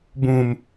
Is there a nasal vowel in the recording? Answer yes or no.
yes